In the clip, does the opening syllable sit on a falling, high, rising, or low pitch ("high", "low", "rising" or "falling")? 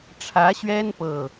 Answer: rising